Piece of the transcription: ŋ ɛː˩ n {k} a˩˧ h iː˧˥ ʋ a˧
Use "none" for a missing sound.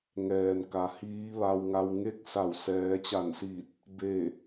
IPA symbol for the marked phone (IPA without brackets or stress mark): k